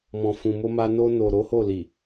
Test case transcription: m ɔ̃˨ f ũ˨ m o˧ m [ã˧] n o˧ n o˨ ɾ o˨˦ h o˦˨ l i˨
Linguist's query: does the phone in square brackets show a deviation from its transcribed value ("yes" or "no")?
yes